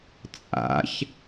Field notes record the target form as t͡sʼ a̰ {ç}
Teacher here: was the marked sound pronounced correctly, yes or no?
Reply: yes